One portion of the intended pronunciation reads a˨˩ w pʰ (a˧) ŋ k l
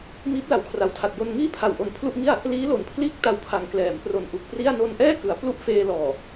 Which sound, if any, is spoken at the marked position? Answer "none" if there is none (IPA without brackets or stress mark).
a˩˦